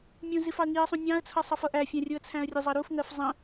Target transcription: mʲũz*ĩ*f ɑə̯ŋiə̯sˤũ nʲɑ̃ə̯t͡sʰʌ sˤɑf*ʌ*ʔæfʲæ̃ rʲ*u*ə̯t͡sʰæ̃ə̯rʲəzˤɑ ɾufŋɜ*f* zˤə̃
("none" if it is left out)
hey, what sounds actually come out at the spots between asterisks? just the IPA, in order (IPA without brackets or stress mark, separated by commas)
i, ʌ, u, f